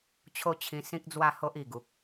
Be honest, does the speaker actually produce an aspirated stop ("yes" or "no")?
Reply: yes